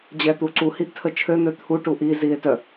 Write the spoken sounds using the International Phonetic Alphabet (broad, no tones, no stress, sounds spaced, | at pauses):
d͡ʑ ɛ t̪ u ǀ u h i ʔ tʰ ə t͡ʃʰ ø n̪ ø t̪ʰ u ʈ u ʔ i z i e̯ t œ